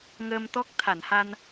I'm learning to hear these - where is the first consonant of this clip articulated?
velum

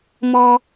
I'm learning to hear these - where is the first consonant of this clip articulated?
lips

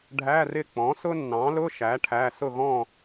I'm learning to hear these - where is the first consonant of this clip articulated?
retroflex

